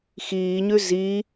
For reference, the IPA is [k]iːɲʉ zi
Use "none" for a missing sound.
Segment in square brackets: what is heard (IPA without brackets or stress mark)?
x